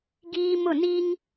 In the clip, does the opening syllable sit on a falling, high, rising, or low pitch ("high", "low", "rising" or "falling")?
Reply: high